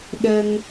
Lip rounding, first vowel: unrounded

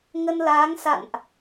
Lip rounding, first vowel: unrounded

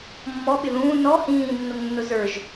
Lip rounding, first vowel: rounded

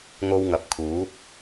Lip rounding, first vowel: rounded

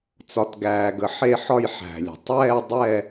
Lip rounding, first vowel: rounded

